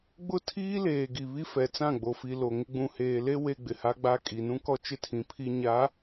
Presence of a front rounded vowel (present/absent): absent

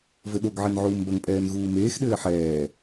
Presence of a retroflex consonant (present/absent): absent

